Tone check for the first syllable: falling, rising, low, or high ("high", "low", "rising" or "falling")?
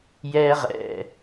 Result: high